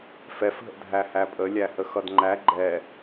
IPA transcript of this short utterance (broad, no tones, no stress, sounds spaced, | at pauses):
f ɛ f ɦ ə̰ dʱ æ h æ pʼ ə lʲ æ h ə x ʌ d ŋ͡ǃ æ ɡ͡ǃ ɛ